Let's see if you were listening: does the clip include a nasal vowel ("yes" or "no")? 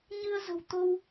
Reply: no